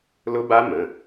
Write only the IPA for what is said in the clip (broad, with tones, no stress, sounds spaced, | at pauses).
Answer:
l ʊ˦˥ b a˦˥ m ə̃˩˧˩